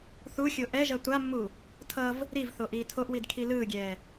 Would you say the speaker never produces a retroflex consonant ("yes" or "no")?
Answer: yes